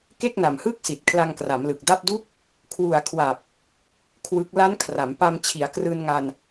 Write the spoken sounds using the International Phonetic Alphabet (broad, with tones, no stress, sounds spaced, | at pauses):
k e˥˩ k̚ n a˨˩ m h ɯː˥˩ k̚ s i˨˩ t̚ kʰ l a˧ ŋ k r a˩˦ m l ɯ˨˩ k̚ d a˥˩ p̚ d u˥˩ k̚ | kʰ w u˨˩ a̯ kʰ w a˨˩ p̚ | kʰ w ɯ˦˥ k̚ l a˦˥ n kʰ r a˩˦ m p a˧ m t͡ɕʰ i˩˦ a̯ k r ɯː˧ n ŋ a˧ n